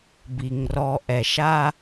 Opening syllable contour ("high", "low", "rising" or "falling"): low